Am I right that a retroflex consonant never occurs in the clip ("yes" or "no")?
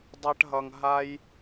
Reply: no